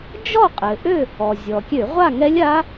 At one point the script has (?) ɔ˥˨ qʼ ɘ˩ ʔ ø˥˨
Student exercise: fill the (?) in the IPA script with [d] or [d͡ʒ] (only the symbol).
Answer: d͡ʒ